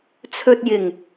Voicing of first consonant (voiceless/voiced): voiceless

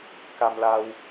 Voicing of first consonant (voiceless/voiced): voiceless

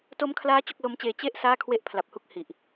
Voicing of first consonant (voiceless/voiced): voiceless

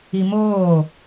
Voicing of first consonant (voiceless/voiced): voiced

